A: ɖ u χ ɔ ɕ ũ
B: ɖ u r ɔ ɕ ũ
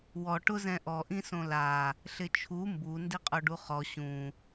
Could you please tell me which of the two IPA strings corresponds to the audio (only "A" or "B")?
A